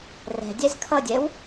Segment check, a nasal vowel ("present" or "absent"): absent